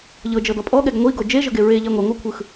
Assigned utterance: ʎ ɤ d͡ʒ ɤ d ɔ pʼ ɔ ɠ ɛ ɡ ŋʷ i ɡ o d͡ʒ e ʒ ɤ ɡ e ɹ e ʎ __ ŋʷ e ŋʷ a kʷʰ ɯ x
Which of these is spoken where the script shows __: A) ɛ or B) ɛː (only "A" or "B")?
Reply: A